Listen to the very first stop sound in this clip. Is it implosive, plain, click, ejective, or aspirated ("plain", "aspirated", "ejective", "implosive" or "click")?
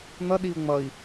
implosive